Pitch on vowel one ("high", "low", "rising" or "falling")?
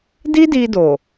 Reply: high